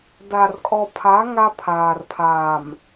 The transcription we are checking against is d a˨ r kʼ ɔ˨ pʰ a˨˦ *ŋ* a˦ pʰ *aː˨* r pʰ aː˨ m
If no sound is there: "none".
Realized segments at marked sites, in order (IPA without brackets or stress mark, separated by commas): ŋ, aː˨